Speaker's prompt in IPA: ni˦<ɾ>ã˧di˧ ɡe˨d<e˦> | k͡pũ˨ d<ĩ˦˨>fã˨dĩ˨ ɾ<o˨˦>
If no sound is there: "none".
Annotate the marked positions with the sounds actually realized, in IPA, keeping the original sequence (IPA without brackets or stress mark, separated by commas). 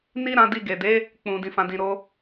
ɾ, e˨˦, ĩ˨, o˧